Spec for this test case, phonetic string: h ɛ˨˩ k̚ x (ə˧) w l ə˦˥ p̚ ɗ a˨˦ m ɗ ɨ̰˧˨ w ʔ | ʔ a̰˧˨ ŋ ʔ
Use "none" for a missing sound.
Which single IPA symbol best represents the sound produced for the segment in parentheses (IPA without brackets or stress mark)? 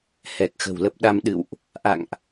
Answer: ə̤˨˩